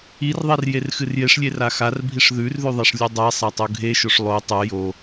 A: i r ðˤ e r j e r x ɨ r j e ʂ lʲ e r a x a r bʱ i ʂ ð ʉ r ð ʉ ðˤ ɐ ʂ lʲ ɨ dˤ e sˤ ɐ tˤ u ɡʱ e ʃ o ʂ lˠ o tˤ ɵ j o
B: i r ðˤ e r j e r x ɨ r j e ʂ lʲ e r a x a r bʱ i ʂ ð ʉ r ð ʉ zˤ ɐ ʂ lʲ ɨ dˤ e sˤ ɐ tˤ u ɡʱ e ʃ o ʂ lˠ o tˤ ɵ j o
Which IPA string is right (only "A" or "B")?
A